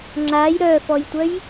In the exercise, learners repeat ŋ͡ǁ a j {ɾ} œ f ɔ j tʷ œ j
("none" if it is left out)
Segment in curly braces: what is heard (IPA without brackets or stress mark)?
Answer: ɾ